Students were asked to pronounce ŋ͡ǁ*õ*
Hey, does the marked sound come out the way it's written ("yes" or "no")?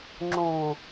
yes